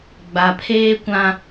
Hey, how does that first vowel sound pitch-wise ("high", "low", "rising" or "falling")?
low